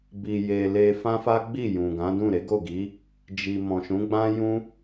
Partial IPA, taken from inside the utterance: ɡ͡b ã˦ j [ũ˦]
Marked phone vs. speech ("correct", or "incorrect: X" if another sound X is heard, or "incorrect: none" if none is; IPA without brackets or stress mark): correct